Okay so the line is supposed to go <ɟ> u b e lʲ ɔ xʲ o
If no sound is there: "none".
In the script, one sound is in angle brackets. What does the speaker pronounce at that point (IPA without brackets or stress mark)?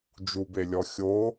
d͡ʒ